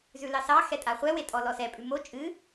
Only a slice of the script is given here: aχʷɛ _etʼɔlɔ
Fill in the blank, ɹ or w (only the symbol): w